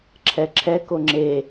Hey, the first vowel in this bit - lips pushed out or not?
no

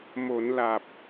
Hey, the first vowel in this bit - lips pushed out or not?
yes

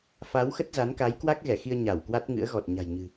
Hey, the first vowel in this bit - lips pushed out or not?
no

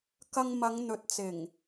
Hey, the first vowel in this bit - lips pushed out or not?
no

